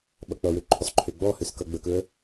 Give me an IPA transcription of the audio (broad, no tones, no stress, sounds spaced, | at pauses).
ɓ ʌ k͡p ʌ w ø ǃʰ ɵ sˤ ǃʰ ø ɡ͡b ɔ h ø s k ʌ ɡ͡b ə k ɵ ə̯